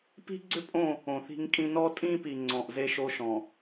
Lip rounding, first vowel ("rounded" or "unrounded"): unrounded